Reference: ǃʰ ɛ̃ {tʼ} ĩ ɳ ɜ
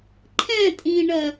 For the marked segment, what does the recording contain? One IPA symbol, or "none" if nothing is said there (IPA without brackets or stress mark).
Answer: tʼ